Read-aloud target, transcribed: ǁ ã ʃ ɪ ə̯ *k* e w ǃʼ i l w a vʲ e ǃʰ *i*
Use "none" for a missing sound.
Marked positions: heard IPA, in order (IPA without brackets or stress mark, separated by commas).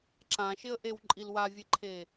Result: ʔ, e